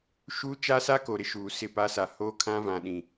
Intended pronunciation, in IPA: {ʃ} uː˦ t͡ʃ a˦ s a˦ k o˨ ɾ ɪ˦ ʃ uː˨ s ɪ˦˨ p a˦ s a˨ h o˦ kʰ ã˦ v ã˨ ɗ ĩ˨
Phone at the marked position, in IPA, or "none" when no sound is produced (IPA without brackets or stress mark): ʃ